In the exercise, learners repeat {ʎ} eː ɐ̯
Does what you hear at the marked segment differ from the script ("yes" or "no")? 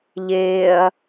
no